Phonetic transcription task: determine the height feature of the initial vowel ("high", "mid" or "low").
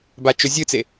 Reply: low